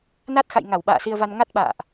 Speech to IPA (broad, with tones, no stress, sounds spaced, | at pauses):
n a˦˥ t̚ x a̰˧˨ j ŋ a˧˩ w ɓ a̰ː˧˨ s i˧ ə̯ v a˧ n ŋ a˦˥ t̚ ɓ a̰ː˧˨ ʔ